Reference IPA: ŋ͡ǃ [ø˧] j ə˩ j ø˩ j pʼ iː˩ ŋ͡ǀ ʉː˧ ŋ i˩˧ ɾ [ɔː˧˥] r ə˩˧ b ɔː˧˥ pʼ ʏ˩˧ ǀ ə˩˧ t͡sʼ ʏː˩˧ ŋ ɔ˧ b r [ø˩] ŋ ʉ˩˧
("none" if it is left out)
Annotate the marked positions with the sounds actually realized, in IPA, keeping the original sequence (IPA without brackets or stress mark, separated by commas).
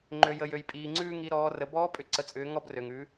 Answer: ø˩, ɔː˩˧, ø˩